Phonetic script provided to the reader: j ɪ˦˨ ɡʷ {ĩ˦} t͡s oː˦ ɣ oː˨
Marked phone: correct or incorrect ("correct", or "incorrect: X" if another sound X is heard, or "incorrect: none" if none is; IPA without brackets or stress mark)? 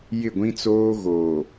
correct